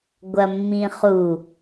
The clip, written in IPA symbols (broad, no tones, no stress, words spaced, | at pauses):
ɡʷɐmːĩχu